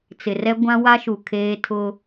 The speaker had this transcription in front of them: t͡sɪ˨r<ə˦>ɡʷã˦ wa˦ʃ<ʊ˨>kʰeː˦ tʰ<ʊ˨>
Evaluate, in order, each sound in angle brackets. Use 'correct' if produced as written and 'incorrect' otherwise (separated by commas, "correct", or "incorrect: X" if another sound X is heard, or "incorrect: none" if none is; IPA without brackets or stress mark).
incorrect: ɛ˦, incorrect: u˨, incorrect: ʊ˦